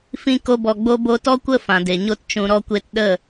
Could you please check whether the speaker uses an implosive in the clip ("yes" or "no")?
yes